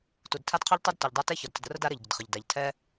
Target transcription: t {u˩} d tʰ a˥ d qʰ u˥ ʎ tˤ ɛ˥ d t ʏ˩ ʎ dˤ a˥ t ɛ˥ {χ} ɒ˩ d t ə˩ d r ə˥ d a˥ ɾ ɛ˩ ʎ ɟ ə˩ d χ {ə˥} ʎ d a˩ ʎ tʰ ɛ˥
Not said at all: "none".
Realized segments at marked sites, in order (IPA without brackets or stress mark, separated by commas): u˩, ç, ə˩